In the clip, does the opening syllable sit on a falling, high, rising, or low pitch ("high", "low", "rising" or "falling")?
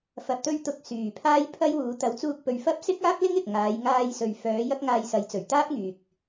low